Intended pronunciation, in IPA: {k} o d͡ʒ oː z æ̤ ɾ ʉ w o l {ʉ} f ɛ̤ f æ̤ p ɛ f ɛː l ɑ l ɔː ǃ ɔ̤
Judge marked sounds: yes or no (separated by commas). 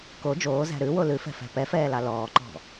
yes, yes